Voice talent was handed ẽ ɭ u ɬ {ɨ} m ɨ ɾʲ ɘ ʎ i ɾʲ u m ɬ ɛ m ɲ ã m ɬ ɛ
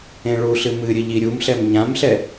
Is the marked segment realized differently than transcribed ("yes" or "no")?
no